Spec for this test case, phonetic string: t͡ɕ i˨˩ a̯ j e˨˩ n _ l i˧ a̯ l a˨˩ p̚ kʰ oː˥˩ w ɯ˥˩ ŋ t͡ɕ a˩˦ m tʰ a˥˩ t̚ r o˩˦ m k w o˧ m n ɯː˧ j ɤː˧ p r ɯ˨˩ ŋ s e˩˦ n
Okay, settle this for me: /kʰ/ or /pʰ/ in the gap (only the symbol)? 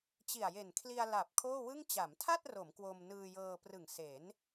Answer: kʰ